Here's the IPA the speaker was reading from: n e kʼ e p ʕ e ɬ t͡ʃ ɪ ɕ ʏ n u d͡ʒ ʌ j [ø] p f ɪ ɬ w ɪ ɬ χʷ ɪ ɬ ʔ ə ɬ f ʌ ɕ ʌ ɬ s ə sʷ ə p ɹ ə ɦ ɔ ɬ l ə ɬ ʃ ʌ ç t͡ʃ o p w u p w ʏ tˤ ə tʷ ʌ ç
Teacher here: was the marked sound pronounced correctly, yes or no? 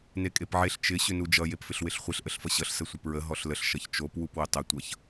no